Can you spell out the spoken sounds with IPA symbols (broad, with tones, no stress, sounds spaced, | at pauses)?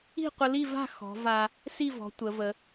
i̤˥˧ qʷ ə˧ l i˥˧ v a̤˥˧ x ɔ̤˩˧ v a˧ | s i˥˧ v ɔ̤˩˧ tʷ ə˩˧ v ə˩˧